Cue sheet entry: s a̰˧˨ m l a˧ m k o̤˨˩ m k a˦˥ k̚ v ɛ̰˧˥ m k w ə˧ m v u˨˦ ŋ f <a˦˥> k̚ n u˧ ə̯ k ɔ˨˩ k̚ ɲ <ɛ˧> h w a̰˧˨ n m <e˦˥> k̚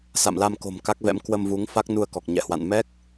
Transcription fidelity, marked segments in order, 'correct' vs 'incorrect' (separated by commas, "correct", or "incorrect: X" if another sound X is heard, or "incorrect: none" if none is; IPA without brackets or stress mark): correct, incorrect: ɛ̰˧˨, incorrect: ɛ˦˥